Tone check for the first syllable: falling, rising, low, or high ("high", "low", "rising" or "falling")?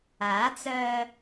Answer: rising